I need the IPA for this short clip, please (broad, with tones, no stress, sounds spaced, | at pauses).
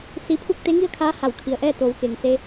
s i˧ pʰ u˥˨ k̚ t̪ e˧˥ ŋ i˥˨ ə̯ kʰ aː˧˥ h a˧˩ w kʰ i˩ ə̯ ʔ ɛː˥˨ t̪ o˩˧ w k e˩ ŋ s e˧